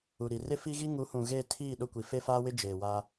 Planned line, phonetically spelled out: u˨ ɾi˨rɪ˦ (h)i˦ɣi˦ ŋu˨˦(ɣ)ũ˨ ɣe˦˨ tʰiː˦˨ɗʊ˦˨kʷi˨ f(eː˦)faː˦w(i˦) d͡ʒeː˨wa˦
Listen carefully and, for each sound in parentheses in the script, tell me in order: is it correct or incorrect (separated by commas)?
incorrect, incorrect, incorrect, incorrect